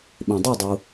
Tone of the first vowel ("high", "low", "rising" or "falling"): low